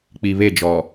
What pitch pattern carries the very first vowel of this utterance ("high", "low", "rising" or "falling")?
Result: low